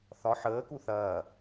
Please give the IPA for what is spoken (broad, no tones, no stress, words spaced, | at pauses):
θɒ ħəːku θɐː